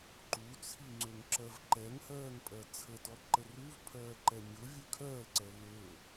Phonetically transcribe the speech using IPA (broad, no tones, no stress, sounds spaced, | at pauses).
ǃ u t͡sʰ i ŋ͡ǀ ø ŋ ǁ ɜ v ǃ ɛ ŋ h ɜː ŋ pʼ ɜ t͡sʰ ə t ɔ ǃ ə r u v pʰ ɜː ǃ ɛ mʲ ʊ vʲ ø kʰ ɜː l ǀ ɛ l ø